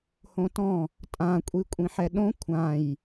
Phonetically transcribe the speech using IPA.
h õ t ɔ̃ | tʼ ã kʷʼ i kʷʼ ĩ ħ ɛ ɗ õ kʷʰ ã j

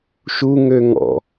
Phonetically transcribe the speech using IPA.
ʃ u ŋ ø ŋ ɔ̰

